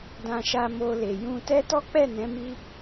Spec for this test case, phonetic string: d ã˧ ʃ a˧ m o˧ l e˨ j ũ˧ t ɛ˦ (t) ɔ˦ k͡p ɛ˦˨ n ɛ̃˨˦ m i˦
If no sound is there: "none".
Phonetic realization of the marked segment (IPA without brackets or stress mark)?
t